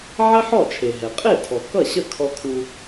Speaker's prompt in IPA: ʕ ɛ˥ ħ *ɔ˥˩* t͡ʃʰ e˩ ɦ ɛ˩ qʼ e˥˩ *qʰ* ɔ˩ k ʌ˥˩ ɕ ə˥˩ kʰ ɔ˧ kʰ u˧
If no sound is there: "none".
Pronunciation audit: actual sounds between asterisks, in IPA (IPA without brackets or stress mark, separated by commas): ɔ˥˩, tʰ